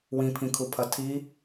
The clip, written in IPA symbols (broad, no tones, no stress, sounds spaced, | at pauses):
w ĩ pʰ ĩ kʰ u pʰ ɐ tʰ i